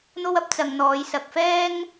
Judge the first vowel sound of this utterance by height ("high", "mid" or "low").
mid